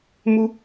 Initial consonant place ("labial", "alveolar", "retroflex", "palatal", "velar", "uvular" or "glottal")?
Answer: labial